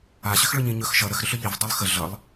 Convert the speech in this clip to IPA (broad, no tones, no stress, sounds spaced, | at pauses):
a ɕ ʏ x ɭ ɵ ɲ ĩ ɲ ɵ x ʃ ʌ ɾ ə x ɾ ʏ ɬ ʏ ʎ i v dˤ i lˠ x ə ɮ ʌ lˠ